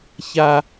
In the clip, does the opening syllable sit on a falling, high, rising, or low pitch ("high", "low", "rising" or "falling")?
high